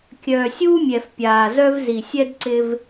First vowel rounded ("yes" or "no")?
yes